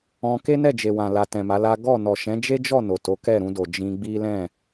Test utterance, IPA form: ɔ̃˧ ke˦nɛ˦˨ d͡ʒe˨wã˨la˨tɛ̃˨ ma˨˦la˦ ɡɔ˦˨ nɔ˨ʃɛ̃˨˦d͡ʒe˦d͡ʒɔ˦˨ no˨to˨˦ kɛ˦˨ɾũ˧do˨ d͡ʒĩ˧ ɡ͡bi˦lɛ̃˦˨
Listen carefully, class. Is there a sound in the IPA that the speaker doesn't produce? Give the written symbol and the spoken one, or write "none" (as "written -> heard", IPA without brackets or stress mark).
none